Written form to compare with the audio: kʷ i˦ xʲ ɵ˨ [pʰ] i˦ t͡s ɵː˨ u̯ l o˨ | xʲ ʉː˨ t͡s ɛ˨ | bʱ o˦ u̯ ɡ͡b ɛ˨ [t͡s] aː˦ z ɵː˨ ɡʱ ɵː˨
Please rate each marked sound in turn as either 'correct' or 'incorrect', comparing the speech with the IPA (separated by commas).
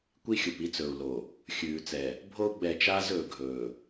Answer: incorrect, incorrect